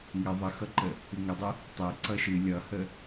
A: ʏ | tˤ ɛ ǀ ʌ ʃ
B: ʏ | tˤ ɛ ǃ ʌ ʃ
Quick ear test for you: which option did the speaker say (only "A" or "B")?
A